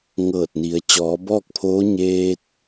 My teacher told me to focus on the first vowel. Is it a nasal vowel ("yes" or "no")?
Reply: no